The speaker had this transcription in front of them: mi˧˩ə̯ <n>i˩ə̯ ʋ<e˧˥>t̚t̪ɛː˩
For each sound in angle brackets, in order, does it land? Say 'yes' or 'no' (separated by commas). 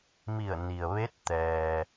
yes, yes